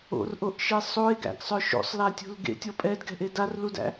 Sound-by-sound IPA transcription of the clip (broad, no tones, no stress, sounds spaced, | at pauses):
o̰ r ʔ o ʔ ʃ e sˤ o e̯ ɡ æ̰ ɡ sˤ œ ʃ o̰ sˤ l a tʲ o̤ l ɡ ḛ tʲ ɔ pʼ ɛ d ɡ ɛ̤ ʔ e d a r l u d æ̰